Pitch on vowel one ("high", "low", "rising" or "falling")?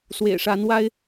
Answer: low